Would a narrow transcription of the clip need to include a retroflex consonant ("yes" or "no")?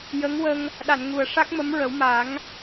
yes